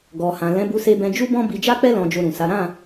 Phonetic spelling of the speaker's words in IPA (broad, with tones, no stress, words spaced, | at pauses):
ɡɔ˨hã˨ lɛ̃˨˦bu˧se˧bɛ̃˧ d͡ʒu˦bɔ̃˦ bi˧d͡ʒa˦k͡pɛ˦ lɔ̃˧d͡ʒo˧ɾũ˨sa˨˦ ɾã˦˨